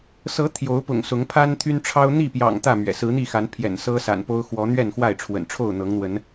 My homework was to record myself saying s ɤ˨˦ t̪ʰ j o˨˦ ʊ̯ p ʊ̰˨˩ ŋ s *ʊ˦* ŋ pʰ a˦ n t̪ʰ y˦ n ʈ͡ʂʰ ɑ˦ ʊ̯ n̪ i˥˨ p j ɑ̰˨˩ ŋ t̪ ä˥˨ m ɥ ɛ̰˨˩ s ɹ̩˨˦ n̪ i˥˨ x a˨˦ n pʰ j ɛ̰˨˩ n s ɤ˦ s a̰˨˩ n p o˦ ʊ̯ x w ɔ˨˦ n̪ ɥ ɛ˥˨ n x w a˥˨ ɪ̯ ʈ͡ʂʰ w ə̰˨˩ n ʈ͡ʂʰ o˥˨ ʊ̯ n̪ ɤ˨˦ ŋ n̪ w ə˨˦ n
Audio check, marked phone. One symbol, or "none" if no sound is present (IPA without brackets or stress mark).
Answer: ʊ˨˦